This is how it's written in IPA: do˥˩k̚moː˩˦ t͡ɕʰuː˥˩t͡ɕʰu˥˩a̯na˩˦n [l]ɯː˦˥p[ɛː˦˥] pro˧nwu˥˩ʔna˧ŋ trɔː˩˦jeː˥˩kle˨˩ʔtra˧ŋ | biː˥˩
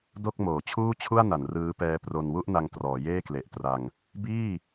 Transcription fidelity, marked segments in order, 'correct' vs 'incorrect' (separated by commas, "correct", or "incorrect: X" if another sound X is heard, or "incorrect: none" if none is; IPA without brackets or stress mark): incorrect: r, correct